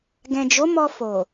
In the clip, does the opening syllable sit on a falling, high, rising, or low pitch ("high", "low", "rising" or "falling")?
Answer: low